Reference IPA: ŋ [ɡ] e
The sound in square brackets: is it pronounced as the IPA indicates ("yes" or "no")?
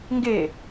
yes